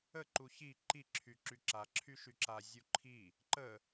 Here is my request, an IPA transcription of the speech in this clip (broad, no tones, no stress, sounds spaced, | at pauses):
ə ǃ u ç i ǃ i ǁʰ y ǁ y ǁ a ǁʰ y ʃ y ǁ a zʲ u ǃʰ i | ǃ ə